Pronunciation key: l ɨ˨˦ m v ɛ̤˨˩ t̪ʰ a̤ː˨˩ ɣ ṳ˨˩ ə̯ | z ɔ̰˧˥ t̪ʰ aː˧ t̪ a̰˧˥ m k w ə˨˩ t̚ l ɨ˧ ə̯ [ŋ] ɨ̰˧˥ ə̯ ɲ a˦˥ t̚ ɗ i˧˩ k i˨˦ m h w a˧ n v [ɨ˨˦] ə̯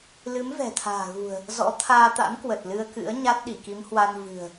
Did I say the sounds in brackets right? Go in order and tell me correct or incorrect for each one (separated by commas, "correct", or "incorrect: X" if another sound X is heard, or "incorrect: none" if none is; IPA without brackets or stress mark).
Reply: incorrect: k, incorrect: ɨ̤˨˩